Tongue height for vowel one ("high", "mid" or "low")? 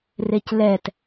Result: mid